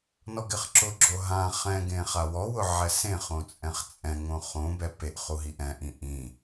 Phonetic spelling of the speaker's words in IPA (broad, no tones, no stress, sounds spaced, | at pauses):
n ɔ ɡ ɪ χ ǁ ʊ ɡ͡ǁ o ɦ ã χ ɛ̃ ɡ ẽ χ a w ɔ w ʊ ʕ ɛ s ẽ χ õ t͡sʼ ɛ̃ χ t͡sʼ ɛ̃ ŋ õ χ õ b ɛ p e ʔ χ u ɦ i ʔ ɛ̃ ʔ ĩ ʔ ĩ